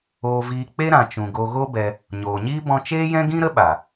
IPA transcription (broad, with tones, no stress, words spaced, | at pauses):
oː˧viː˧ k͡pe˦ɾã˨t͡ʃũ˨ ɡo˧ɣo˦bɛ˧ | ɲoː˨ɲiː˦ bɔ̃˧t͡ʃeː˦jɛ̃˦ɡĩ˦ ɾə˦ɓa˨